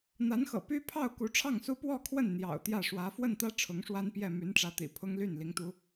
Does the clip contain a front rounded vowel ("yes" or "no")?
yes